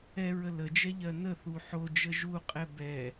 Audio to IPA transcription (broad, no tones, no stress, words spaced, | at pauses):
ɛɹə ləd͡ʒɛʎɜ nəθu ħod͡ʒə ʒuqʼɛ bɛ